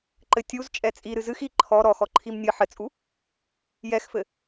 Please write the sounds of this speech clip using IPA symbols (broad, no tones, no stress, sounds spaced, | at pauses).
ǃ ɘ tʲ u z t͡ʃʼ ɛ t͡sʼ i ɾ ɨ z ɨ x i ǃʰ ɔ ɾ ɔ x ɔ ǃʰ i m nʲ ɨ ħ ɘ t͡sʼ u | j ɛ x f ɘ